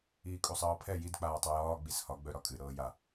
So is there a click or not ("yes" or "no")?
no